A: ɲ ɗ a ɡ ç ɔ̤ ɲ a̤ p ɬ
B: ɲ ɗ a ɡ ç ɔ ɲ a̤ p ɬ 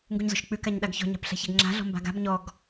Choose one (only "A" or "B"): A